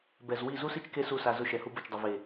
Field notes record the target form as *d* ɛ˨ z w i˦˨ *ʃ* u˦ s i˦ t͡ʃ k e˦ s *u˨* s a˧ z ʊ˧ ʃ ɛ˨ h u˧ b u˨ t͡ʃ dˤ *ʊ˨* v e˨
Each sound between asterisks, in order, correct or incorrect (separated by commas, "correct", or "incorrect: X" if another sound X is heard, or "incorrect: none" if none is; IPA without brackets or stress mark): incorrect: b, incorrect: z, incorrect: u˦˨, correct